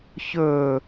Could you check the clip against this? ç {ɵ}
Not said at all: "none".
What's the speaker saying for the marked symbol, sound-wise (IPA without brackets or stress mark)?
ɵ